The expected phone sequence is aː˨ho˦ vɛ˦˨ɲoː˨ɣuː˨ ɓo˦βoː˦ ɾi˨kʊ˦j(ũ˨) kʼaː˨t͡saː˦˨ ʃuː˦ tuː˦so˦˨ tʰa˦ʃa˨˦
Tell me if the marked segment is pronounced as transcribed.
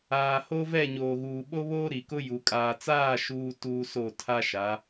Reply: no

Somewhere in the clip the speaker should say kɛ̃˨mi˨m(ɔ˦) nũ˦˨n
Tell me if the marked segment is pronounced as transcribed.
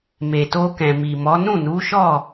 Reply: no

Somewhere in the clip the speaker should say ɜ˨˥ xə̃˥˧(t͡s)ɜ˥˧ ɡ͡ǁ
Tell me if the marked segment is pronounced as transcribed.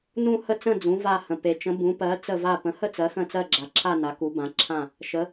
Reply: yes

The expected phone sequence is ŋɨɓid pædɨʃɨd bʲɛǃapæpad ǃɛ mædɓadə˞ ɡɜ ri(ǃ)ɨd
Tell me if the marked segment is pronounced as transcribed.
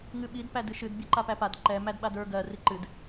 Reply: yes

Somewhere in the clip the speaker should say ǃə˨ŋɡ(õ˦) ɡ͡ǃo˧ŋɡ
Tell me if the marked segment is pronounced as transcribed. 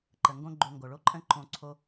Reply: yes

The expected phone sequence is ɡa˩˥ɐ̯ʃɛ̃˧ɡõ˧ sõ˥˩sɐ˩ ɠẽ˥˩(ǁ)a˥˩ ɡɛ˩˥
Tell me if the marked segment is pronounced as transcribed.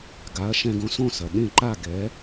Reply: no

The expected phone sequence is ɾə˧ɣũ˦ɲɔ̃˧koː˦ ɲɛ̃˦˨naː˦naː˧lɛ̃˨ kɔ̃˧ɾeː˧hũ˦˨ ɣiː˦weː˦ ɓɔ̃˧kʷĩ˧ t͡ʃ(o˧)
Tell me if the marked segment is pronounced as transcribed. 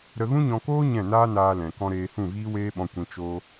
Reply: no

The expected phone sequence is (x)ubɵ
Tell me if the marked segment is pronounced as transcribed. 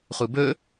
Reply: no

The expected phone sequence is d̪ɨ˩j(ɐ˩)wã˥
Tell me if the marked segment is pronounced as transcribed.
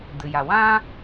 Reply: no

